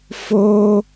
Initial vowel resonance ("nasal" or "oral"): oral